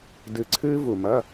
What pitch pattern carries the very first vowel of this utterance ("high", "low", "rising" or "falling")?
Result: low